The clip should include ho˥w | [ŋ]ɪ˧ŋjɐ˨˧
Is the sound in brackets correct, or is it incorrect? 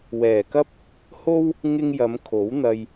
correct